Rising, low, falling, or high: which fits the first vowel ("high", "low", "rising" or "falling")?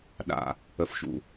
low